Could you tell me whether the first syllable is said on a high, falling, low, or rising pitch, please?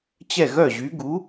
falling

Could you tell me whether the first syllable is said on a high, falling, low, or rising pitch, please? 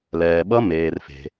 low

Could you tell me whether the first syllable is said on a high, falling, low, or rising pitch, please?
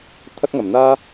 high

